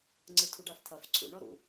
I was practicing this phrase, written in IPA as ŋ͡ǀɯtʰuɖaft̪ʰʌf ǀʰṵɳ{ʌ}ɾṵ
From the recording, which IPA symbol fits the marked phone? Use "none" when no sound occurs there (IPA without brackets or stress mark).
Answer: ɔ